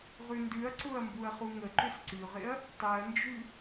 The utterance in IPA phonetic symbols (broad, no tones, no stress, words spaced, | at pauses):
ʁʉndʉɐ̯ǀʊɐ̯ mbuɐ̯χuŋəǃʏs ǀʉʁɪɐ̯ | tˤɛɐ̯nd͡ʒʉ